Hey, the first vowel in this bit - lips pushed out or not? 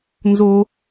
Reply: yes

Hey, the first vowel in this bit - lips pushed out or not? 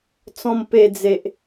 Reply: yes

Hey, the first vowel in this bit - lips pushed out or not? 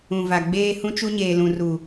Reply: yes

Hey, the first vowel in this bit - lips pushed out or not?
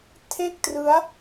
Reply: no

